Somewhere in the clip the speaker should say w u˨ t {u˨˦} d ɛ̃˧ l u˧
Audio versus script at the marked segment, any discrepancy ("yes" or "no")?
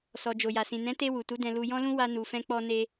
no